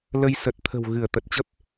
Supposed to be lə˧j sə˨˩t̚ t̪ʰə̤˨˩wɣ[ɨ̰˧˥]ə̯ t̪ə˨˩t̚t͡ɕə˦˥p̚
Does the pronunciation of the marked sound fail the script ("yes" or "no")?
yes